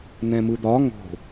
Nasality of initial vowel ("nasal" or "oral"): nasal